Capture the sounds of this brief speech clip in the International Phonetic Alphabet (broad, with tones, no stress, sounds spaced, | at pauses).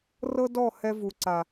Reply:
r ɤ˦ d ɔ˦˨ h ɛ˦ v u˨ ǀ a˨